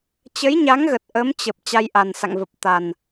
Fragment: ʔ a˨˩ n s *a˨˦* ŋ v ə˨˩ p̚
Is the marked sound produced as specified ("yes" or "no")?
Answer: no